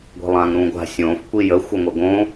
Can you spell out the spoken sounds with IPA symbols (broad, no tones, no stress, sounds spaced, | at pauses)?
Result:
ɡʷ i̤ lˠ ãː ŋ ɾ ũː ɡʷ a̤ sʲ õː f kʷ i j ə xʷ ə ŋʷ ə ɡ õ